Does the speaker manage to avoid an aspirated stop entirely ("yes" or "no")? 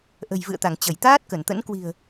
yes